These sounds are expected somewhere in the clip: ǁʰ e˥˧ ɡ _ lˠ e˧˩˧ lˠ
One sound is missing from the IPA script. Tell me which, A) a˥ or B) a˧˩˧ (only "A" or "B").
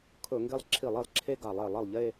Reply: B